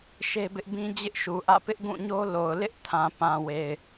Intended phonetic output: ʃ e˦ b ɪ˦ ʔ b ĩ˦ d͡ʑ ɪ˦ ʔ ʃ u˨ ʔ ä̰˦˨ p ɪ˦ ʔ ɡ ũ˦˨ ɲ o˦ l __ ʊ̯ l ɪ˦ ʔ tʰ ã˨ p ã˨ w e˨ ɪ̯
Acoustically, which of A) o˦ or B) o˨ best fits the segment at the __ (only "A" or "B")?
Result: B